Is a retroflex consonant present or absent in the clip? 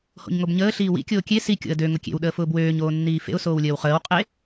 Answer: absent